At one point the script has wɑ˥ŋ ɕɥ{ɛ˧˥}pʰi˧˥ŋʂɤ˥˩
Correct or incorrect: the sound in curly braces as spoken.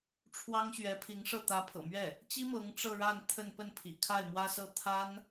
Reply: correct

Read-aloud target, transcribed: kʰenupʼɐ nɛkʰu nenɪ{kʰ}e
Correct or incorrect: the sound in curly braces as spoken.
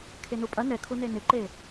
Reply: incorrect: ǃ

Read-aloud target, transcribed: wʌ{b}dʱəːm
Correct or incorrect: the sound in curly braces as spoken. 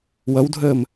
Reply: incorrect: w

